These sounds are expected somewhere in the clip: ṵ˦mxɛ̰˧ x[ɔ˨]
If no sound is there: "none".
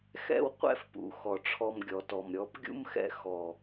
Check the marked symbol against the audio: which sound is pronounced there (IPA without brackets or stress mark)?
ɔ˨